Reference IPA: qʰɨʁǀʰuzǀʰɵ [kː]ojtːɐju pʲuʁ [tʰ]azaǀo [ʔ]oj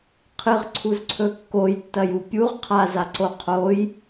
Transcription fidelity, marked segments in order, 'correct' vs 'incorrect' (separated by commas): correct, incorrect, incorrect